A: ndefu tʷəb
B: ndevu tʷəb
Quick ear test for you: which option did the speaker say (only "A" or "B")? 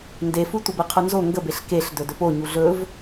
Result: A